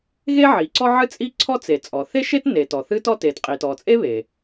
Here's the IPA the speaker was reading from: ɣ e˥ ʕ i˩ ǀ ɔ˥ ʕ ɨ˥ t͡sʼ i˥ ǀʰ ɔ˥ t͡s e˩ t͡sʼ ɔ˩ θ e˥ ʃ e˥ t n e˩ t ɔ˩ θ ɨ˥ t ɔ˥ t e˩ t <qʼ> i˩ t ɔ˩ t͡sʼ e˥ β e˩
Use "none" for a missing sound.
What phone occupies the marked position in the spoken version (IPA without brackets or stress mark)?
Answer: qʼ